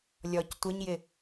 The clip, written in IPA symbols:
lʲ ɔ c tʷ ə ɲ j ɪ

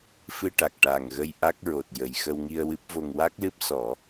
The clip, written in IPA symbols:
f ɨ˧ ʈ a˨˩ k̚ ʈ a˨˩ ŋ ɣ ə˧ j ʔ a˦˥ k̚ ɹ o˨˩ t̚ j ə˨˩ j x ə˧ w ŋ i˧ ə̯ w ɨ˦˥ p̚ v o˧ ŋ w a˦˥ k̚ l ɨ˦˥ p̚ s ɔ˨˩˦

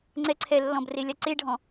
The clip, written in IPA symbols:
ŋ͡ǀ ɛ ǀʰ ɛ lː ɔ̃ b r e lʲ a ǀ e ɖʱ ɔ̃

